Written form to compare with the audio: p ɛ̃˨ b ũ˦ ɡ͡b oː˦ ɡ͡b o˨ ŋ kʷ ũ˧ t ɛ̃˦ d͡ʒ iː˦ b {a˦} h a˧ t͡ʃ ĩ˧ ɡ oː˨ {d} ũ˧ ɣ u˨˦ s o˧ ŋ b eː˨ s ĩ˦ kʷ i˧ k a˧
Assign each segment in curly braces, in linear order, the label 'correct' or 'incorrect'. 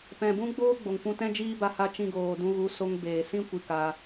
incorrect: a˧, correct

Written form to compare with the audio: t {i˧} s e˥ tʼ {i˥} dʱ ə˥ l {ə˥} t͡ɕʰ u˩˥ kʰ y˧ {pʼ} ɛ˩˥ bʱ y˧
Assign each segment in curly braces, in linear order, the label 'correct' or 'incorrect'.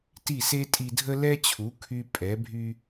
incorrect: i˥˩, incorrect: i˧, incorrect: ɛ˥, correct

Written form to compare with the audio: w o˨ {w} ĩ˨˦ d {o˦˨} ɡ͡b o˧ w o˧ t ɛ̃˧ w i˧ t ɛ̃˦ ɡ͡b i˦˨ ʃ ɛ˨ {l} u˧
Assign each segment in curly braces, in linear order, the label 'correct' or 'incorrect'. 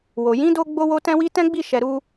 incorrect: j, incorrect: o˧, incorrect: ɾ

